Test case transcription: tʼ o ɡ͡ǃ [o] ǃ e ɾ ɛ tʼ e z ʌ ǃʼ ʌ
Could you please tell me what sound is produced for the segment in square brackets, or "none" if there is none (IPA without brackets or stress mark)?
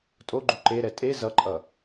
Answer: u